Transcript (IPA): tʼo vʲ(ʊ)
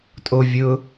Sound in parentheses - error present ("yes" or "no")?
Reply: no